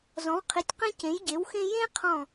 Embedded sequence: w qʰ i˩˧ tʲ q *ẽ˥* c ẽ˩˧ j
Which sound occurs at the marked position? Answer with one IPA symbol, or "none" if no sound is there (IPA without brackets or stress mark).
ẽ˧